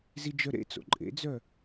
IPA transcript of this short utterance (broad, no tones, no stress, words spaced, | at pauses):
zid͡ʒœɾḛt͡so̰ ǃʼḛd͡zœ